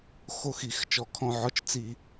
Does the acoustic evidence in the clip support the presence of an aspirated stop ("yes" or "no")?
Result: yes